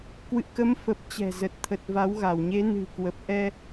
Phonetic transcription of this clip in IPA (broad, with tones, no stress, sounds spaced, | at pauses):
k w ɨ̰˧˨ k ə˨˦ m f ə˨˩ p̚ t͡ɕ ɛ̤˨˩ z ə˨˩ t̚ t̪ʰ ə˨˩ t̚ v a˨˦ w ɣ a˧˩ w ɲ e˨˦ n ɨ̤˨˩ k w ə˨˩ p̚ ʔ ɛ˧